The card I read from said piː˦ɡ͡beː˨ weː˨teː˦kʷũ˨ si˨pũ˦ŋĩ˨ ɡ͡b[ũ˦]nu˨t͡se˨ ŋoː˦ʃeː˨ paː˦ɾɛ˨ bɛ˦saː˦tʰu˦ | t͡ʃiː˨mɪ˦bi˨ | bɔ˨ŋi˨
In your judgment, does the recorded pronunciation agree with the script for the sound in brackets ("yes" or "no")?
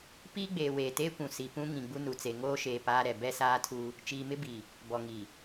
no